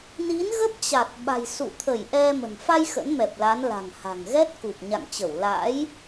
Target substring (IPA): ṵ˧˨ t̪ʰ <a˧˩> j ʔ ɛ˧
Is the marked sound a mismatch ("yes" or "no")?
yes